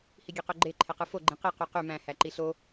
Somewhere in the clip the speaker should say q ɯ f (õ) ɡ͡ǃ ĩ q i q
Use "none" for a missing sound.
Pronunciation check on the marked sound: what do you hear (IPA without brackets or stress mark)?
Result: o